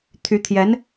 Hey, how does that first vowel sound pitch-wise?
rising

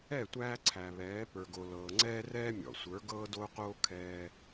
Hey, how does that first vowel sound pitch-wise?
falling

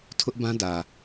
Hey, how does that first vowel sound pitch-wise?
high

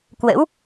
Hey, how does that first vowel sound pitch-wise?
rising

